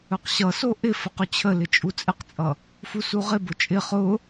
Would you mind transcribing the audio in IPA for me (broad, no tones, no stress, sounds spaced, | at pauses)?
ɵ q ɕ ʌ s o ʔ ɪ f ə q ɵ t͡ɕʰ ə l ɪ t͡ʃʼ u t͡sʼ ɪ q t͡sʼ ʌ | f u s u ʁ ɪ b ʊ t͡ʃʼ ɪ χ ʊ